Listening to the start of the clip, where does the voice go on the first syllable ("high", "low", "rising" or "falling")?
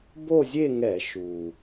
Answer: falling